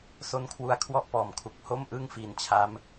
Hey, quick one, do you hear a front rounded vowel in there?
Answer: no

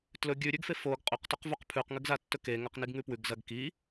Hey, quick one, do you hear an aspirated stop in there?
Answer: yes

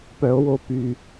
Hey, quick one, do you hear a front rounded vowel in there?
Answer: yes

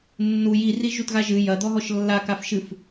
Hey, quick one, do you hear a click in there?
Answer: no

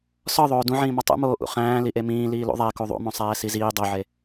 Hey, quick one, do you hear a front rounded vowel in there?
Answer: no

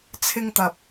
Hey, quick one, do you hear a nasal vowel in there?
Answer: no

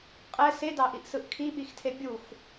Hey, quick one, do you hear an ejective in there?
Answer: yes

